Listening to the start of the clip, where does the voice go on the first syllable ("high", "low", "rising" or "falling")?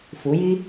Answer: rising